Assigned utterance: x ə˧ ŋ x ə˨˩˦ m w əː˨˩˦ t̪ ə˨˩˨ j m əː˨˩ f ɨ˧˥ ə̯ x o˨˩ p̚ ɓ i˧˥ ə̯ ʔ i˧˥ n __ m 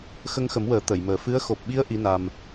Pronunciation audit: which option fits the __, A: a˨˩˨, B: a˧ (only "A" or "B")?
B